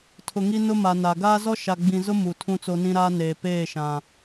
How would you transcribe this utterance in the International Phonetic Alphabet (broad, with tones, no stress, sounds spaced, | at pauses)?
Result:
tʰ ʊ˨ ŋ i˦ n ʊ˦ m a˨ n a˨ ɡ aː˦ z ɔ˦ ʃ a˨ ɡ͡b ĩ˨ z ʊ˦ m u˨ tʰ ũ˦ t͡s o˦ n ĩ˦ ɾ aː˦ n eː˨ p eː˦˨ ʃ ã˨